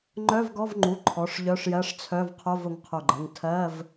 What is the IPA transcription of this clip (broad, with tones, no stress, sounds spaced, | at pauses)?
ŋ͡ǃ œ˧˥˧ v ɡ ɔ˧˥˧ v ŋ͡ǃ u˩˧˩ ǃʰ ɔ˩˧˩ ʂ ʎ œ˧˥˧ ʂ j ɜ˧˥˧ ʂ t͡sʰ œ˧˥˧ v qʰ o˧˥˧ v ʊ˩˧˩ ŋ qʰ o˧˩ ɡ͡ǃ ɜ˩˧˩ ŋ tʰ ɜ˧˥˧ v